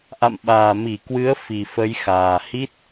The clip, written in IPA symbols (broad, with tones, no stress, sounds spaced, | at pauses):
ʔ a̰˧˨ m ɓ aː˨˩ m i˧˩ k w ɨ˨˦ ə̯ f i˨˩ f ə˨˦ j x aː˨˩ h i˦˥ t̚